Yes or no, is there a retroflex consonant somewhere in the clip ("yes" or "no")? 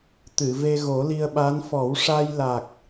yes